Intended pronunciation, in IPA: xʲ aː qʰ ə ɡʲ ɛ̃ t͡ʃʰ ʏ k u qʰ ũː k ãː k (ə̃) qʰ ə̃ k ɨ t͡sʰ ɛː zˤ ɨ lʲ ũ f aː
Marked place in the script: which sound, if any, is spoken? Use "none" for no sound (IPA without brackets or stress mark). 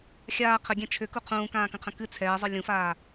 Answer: ə̃